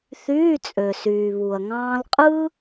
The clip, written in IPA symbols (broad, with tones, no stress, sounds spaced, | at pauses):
θ yː˧˥˧ t͡sʼ ø˨ s yː˨ β u˨ ɐ̯ ŋ ɑ̃ː˥ l qʼ ɯ˥